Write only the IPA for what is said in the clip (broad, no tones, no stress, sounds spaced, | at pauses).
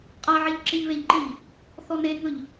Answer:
qʼ a ʕ e ʎ ǁ ɪ ʎ β e ʎ ǃ i ʎ | θ ɔ n e ŋ ɵ ʎ